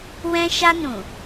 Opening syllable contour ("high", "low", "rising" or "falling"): high